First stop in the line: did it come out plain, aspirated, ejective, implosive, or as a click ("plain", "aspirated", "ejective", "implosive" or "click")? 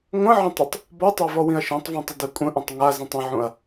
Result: plain